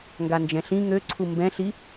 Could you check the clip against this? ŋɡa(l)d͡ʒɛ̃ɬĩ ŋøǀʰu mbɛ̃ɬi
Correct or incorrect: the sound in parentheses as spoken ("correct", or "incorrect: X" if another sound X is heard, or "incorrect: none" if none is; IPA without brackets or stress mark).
incorrect: n